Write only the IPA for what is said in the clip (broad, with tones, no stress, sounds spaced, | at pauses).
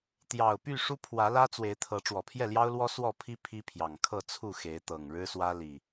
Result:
t̪ j ɑ˨˩ ʊ̯ p y˥˨ ʂ u˦ pʰ w ä˨˦ l ä˦ t͡s w e˨˦ ɪ̯ t̪ʰ ɤ˨˦ ʈ͡ʂ w ɔ˨˩ pʰ j ɛ˥˨ l j ɑ˦ ʊ̯ l w ɔ˦ s w ɔ˥˨ pʰ i˦ pʰ i˦ pʰ j ɑ˨˩ ŋ kʰ ɤ˥˨ t͡sʰ u˥˨ x e˨˦ ɪ̯ t̪ ɤ˨˩ ŋ ɻ ɻ̩˦ s w ä˦ l i˨˩